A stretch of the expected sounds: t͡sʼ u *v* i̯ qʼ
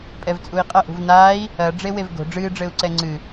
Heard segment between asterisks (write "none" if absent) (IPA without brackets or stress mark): none